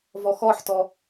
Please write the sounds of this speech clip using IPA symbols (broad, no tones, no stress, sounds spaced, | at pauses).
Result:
v ɔ x ɔ ħ t ɔ